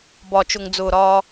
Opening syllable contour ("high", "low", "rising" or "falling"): low